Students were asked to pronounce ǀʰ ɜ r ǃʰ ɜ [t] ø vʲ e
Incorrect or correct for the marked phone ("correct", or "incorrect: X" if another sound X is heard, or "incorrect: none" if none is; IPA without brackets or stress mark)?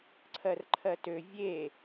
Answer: correct